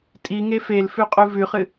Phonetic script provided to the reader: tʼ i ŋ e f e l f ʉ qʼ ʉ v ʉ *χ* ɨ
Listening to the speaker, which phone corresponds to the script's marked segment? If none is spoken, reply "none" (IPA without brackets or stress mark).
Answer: χ